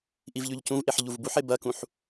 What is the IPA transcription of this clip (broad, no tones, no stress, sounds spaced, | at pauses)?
ʔ i v ʎ ʉ ʎ c ũ v ʔ e ħ ʎ u v b u ħ e b ɐ k ũ ħ